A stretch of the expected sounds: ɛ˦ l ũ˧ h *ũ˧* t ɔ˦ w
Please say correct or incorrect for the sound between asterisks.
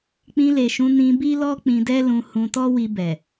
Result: correct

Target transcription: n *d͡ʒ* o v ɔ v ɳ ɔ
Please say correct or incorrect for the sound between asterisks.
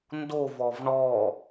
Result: incorrect: d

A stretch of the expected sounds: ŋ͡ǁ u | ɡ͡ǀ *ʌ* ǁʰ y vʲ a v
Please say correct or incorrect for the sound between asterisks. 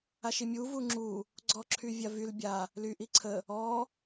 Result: incorrect: ɔ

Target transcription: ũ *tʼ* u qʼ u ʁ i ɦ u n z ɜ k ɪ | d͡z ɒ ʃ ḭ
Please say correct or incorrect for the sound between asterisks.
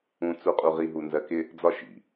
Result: incorrect: t͡s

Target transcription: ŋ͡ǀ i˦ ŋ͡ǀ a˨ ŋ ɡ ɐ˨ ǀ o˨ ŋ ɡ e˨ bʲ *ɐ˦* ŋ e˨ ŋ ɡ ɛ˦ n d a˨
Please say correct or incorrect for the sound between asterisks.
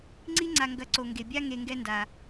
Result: incorrect: a˦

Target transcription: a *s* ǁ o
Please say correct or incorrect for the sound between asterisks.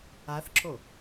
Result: incorrect: θ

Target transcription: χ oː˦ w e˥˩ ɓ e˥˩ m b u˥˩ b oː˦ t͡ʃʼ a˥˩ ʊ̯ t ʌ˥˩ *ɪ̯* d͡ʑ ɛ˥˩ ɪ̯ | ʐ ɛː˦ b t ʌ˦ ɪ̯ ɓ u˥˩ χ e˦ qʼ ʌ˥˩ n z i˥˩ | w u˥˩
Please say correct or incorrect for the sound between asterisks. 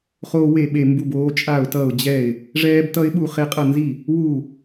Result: incorrect: ʊ̯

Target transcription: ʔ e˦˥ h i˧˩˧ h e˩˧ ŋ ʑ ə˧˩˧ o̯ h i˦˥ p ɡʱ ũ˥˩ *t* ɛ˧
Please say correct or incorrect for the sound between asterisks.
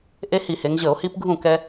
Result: incorrect: k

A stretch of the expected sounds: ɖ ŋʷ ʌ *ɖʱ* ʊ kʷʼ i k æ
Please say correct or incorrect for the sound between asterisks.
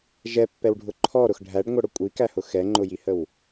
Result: incorrect: ɽ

